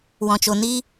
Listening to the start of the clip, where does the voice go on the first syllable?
low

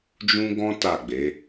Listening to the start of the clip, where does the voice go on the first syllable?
high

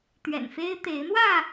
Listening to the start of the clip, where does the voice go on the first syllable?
low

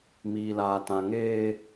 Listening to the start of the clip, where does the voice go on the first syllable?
low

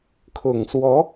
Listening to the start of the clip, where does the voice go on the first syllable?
low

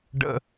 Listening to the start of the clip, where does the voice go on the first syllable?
high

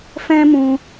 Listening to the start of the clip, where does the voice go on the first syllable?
high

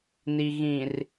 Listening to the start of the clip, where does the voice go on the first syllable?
low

